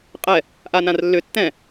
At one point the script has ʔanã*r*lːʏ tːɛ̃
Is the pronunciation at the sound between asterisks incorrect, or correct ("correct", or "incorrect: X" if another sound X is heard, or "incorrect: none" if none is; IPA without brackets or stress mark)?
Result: correct